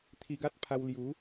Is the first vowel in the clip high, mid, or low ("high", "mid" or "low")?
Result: high